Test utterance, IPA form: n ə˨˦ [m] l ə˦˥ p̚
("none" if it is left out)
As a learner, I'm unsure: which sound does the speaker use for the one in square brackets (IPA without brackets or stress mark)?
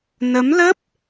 m